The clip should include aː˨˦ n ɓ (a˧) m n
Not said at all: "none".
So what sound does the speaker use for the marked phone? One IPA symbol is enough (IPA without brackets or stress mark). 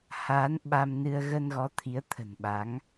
a˧